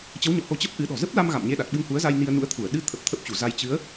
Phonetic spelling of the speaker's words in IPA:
t͡ɕə˨˦wɲɔ̰˧˨ho˨˦ t͡ɕə˦˥p̚ʔɨ˨˦ɗɔ̤˨˩ zə˦˥p̚la˧m ɣa̰˧˨mɲe˧ɗa˨˩t̚ ɓɨ˧ŋhu˨˦ə̯za˧j ni˧ə̯nṵ˧˥ə̯t̪ʰu˧˩ə̯ ɗɨ˧t̪ʰə˨˩p̚ t̪ʰə˦˥p̚t͡ɕu˧˩za˧j t͡ɕɨ˨˦ə̯

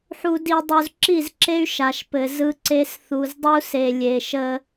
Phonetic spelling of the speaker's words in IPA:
ħu˨di˨ dˤu˨zǁi˦˨zǁe˦y̯ ʃa˨ʃpɘ˨ zɯ˦ǀe˦s θu˨zdˤu˦se˨ lʲe˨ʃə˦

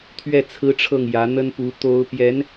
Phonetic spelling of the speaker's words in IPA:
t̪ʰɥɛ˥˩t͡sʰɹ̩˥ʈ͡ʂʰɤ˥˩ŋ jä˧˥n̪ə˥npu˧˥ t̪o˥ʊ̯ pjɛ˧˥n

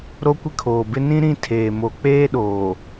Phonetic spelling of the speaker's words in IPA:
ɾo˦kʷɪ˦kʰoː˨bɪ˦ nĩ˦ ɾĩ˦ tʰeː˨mo˨ k͡peː˦ɗoː˨

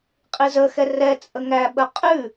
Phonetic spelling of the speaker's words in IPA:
qʼizəxɛ rɛ t͡sʼəŋæɓə qʼʉ

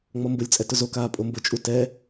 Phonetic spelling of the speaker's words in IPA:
ŋ͡mɔmbʊlʲt͡sʼɛt ʊzokaː pʼombʊt͡ʃʼu tɛ

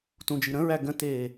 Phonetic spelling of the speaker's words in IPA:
tũd͡ʒi ɾə̃ɹæ ɡə̃teː

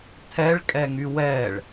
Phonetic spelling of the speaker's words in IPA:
tʰɛɭkʼɛŋy wɛɭ

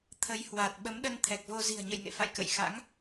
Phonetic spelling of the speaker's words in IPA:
t̪ʰə˨˦jhwa˨˩t̚ ɓə˨˦mɗə˧nt̪ʰɛ˨˩k̚vo˧ zi̤˨˩ə̯ɲə̰˧˨jŋḛ˧˨fa̰˧˨j kə̰˧˨jxa̰˧˥ŋ

